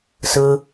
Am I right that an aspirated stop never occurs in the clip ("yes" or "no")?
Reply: yes